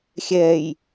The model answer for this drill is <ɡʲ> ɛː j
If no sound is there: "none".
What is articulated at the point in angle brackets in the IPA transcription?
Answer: xʲ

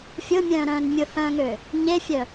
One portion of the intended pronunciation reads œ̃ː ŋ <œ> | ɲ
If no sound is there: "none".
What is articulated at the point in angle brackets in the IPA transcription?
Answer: ø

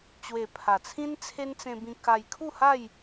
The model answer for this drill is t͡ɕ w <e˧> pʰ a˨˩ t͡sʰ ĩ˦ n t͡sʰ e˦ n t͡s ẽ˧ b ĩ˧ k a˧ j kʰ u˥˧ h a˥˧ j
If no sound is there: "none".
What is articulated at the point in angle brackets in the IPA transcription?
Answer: e˨˩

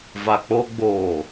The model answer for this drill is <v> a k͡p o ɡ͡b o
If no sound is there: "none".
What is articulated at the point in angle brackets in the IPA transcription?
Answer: v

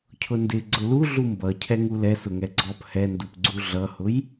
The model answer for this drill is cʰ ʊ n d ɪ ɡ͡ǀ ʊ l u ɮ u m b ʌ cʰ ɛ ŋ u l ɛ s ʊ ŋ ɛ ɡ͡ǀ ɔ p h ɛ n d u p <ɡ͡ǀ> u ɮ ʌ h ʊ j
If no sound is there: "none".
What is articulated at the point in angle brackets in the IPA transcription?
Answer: ɡ͡ǀ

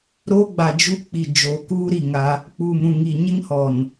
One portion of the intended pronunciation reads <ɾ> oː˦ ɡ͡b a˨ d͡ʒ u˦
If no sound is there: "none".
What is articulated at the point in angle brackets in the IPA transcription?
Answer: ɾ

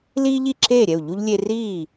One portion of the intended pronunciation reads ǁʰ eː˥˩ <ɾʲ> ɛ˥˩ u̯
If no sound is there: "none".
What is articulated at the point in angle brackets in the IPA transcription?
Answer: ɾʲ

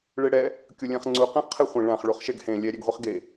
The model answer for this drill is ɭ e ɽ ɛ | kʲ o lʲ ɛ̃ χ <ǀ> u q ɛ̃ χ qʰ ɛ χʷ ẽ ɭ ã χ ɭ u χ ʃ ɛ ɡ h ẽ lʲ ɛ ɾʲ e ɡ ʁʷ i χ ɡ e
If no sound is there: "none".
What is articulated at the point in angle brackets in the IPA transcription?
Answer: ŋ͡ǀ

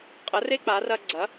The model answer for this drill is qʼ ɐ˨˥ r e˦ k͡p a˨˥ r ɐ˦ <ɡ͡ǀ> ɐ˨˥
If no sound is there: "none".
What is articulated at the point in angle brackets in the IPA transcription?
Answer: ɡ͡ǀ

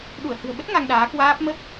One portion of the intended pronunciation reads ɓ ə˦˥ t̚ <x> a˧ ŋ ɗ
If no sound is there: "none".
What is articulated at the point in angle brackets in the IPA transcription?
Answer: ŋ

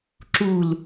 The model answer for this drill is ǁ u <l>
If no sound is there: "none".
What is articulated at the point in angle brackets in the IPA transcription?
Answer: l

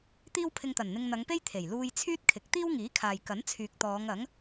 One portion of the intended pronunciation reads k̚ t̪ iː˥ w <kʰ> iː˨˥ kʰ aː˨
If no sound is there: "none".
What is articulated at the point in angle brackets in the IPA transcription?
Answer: ŋ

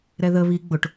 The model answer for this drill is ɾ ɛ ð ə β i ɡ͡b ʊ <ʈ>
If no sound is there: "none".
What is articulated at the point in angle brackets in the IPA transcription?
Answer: ʈ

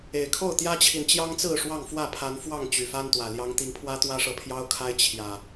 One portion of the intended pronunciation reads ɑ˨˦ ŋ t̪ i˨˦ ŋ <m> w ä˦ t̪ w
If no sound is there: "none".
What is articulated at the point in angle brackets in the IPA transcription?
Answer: pʰ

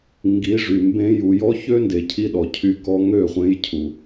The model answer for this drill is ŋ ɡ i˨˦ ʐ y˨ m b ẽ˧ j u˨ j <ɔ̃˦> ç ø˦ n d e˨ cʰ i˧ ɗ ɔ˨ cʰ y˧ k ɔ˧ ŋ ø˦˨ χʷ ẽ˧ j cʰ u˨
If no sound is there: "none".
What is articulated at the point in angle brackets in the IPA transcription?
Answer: ɔ˦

